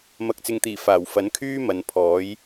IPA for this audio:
m ɐ˨ k̚ t͡s ɪ˨˧ ŋ t̪ iː˨˩ f aː˨˩ w f ɐ˨˥ n kʰ yː˥ m ɐ˨˧ n pʰ ɔː˨˥ j

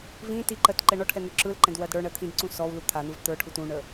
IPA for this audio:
v ĩ t i ǃ ɜ t ǃ ɛ ɳ ɔ ʈʰ ɛ n̪ ʏ ǁ ɯ l ǃ ɛ̃ d w ɜ d ɽ ə˞ ɳ ɜ t̪ʰ ĩ d ǀ ũ s ɔ w l u t̪ʰ a n̪ ɯ v t̪ ə˞ ʈʰ u t ũ ɳ ə

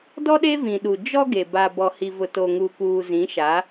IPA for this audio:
d ɔ˦ ɗ e˦ v ĩ˨ ɗ u˨ d͡ʒ ɔ˦ ɡ e˨ b a˨ b ɔ˨ h i˨ v ʊ˨ t o˨ ŋ u˨ k uː˨ z ĩ˨˦ ʃ a˨˦

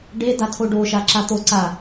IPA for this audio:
ɖ e d a tʰ o ɖ o ʃ a ǁ a t̪ o ǀ a

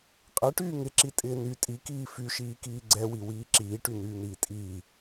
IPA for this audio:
qʼ ɛ ʈ yː ŋ ɪ ǁ i tʼ ɪː n y tʼ i k iː f y ʃ iː k iː ɡ͡ǀ ɛ w i w iː ǁ iː ʈ y n yː n̪ iː tʼ iː

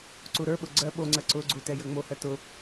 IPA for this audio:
ǀ u ɾ ə˞ ɓ ʊ ɡ͡ǀ ɜ ɓ o ŋ͡ǀ ɜ ǀ ʊ ɡ͡ǀ u t ɛ j ə ŋ͡m o h ɜ t ʊ

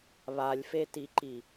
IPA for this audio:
β a lʲ f e t i ǃ i

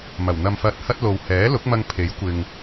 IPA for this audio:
m ɐ˨˩ w n̪ ɐ˧ m f ɐ˧ t̚ h ɐ˥ t̚ l o˨ w h ɛː˨˥ l ʊ˨˥ k̚ m ɐ˧ ŋ pʰ e˨˥ j kʷ ɪ˧ ŋ

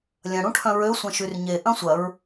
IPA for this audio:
lʲ ɐ̃ ɽ ũ ʈʰ œ̃ ɹ ø sʷ ɐ̃ ʃ y r ɲ e ʔ ɐ̃ sʷ ɐ ɹ

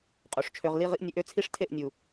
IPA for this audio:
qʼ o˨ ʂ t͡ʃʰ ø˧ ʁ l i˦ ʁ i˦ ʔ nʲ ø˧ ʔ ø˦ t͡sʰ i˦ ʂ tʰ e˦˨ ʔ nʲ u˨

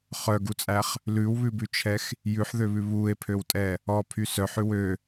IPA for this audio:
χ œ ɡ u t͡sʼ æ χ | l ʉ w β ʉ b ʉ t͡ʃʰ ɛ x | j ʉ ħ ð ø β ʉ β u e̯ pʰ ø w tʼ ɛ | ɔ pʰ y s œ ħ ʉ w ø

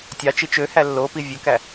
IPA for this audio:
tʲ ɑ t͡ʃ i t͡ʃ ø h æ lː o p i vʲ ø k æ

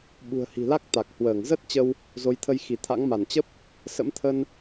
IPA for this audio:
ɓ ṳ˨˩ ə̯ h i̤˨˩ l a˦˥ k̚ t̪ a˨˩ k̚ h w əː˧˩ ŋ z ə˦˥ t̚ t͡ɕ ə˧ w | z o˨˦ j t̪ʰ ə˧ j x i˧˩ t̪ʰ a̰˧˥ ŋ m a˧˩ n t͡ɕ ə˦˥ p̚ | s ə̰˧˥ m t̪ʰ ə˧ n

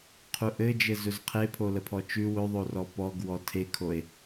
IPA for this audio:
qʰ u ʔ ɘ d͡ʒ ɘ z ɵ z qʰ e pʰ o l ə pʰ ɔ t͡ʃ ʉ w ɵ ðˤ o r ɔ p ɔ ɡ w ɔ tʰ e kʰ o e̯

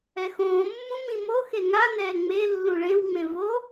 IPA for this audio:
ɛ x õː mː ũ m ĩ m o x e ŋ a n ɛː ŋ͡m e lː ũ ɭ ẽ w ŋ͡m ẽ v o

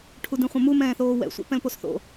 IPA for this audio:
ʈʰ u d ĩ χʷ ə̃ m u m ɛ̃ː θ oː w ɛ̰ sʷ ɛ̰ p ɛ̃ l p o s θ o̰

